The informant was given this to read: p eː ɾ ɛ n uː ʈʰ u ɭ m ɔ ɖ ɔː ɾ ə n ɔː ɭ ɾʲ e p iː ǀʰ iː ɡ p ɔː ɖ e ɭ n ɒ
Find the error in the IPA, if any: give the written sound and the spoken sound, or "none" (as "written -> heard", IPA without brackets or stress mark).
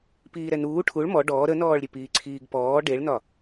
eː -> iː